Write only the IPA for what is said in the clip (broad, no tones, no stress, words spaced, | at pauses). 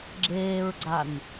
ɡ͡ǁeːɹɡ͡ǀan